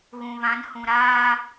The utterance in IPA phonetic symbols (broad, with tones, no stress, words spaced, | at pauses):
ɣũ˨βã˨˦n hũ˨ɾaː˦